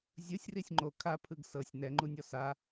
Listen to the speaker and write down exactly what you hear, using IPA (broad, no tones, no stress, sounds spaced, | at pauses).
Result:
zʲ ɯ sʲ r i sʲ ŋ͡ǃ o kʰ a pʰ ɯ ɡ s ɤ sʲ n ɛ ŋ͡ǃ u nʲ ɔ s a